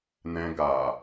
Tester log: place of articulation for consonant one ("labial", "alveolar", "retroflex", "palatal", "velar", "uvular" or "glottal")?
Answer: alveolar